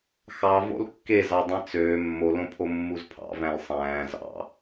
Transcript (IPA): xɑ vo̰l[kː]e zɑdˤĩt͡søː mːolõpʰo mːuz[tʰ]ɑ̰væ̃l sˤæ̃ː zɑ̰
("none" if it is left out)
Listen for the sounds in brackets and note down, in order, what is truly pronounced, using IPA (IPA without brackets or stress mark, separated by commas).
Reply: kː, pʰ